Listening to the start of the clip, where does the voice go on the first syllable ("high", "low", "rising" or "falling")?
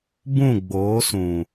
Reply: falling